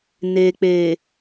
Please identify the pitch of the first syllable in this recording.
low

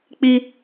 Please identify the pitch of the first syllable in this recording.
high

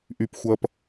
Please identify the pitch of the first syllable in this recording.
high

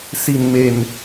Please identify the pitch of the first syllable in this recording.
low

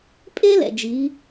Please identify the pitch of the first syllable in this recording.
high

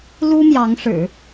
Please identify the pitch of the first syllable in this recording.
high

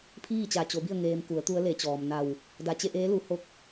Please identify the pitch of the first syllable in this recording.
falling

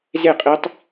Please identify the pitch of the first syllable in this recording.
falling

